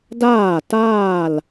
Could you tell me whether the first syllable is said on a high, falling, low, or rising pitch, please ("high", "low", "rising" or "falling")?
falling